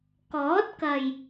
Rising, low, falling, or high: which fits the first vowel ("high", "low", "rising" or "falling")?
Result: rising